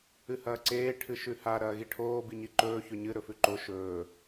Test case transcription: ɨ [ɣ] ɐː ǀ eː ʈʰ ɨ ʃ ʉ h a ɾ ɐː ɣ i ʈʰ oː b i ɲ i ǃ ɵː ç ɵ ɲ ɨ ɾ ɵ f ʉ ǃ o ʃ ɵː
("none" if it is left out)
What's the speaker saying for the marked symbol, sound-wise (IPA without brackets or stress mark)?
h